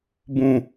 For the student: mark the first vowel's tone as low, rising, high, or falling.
low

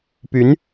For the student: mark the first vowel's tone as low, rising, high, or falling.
rising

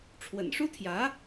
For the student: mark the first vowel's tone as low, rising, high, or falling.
low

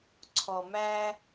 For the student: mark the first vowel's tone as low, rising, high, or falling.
low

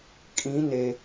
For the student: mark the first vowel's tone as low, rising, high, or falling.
rising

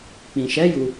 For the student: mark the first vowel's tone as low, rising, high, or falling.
low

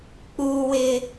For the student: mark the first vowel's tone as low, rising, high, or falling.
high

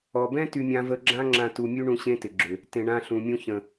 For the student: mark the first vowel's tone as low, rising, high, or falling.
low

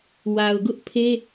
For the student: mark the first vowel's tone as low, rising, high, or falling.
low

